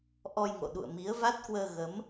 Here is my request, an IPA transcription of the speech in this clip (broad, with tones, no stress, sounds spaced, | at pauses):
ʔ ɔ˧ j ŋ o̰˧˨ ɗ ṵ˧˨ ə̯ m i˨˦ ə̯ v a˦˥ t̚ k w əː˧ ɣ ə˨˦ m